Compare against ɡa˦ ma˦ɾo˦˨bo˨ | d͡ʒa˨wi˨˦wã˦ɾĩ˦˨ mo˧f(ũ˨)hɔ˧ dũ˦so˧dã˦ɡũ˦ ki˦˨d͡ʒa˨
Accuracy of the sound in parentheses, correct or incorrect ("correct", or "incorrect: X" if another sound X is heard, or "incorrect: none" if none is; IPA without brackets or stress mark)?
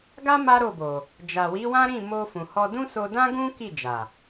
correct